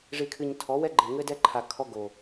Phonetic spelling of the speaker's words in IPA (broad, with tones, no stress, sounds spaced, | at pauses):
ʐ i˨ kʰ ɨ˨ ɲ tʰ ɔ˨˦ w ɛ˦ ɡ͡ǃ e˨ ŋ ɘ˦ d ɛ˦ ǃʰ a˨ kʰ ɔ˦ ɡ o˨